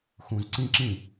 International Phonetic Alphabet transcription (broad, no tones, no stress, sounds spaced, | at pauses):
x ũ z ǀ ĩ ǁ ĩ